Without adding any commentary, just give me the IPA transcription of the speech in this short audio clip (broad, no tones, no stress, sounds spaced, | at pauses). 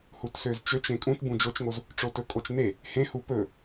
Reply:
h u t s ø z t͡ʃ ø t͡ʃ ẽ kʼ ũ t b ũ d͡ʒ o t͡ʃ ŋ o z | ʈ͡ʂ o t ɵ kʼ o t͡ʃ n e | h ẽ h u p ɵ